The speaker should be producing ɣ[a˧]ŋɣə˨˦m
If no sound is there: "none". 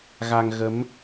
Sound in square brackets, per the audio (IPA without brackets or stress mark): a˧